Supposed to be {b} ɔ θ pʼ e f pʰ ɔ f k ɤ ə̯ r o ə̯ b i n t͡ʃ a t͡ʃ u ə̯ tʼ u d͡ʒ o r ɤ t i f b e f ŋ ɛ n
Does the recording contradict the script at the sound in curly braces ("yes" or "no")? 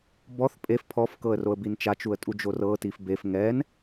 no